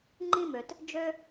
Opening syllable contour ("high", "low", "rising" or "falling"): high